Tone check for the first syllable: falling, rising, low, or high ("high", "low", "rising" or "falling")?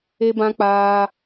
high